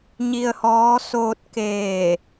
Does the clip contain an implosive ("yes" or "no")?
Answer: no